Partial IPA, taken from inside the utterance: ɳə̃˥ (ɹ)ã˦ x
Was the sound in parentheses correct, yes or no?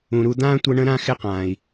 no